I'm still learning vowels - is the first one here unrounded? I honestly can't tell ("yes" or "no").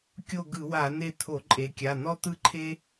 no